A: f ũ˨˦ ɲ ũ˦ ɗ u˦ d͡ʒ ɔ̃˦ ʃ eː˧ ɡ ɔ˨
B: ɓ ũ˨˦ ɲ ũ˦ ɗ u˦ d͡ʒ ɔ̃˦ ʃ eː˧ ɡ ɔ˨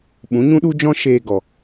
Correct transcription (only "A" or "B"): B